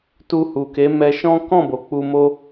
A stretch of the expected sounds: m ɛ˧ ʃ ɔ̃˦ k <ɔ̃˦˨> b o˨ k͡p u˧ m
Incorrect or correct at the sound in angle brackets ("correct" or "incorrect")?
correct